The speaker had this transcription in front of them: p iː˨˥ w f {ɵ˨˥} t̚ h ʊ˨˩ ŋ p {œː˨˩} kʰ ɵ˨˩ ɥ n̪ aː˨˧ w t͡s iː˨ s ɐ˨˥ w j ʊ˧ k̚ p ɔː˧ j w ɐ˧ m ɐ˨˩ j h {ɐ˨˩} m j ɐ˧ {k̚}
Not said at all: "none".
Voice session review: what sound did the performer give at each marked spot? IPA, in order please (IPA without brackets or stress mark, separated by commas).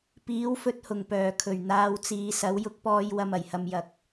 ɵ˧, œː˨˩, ɐ˧, k̚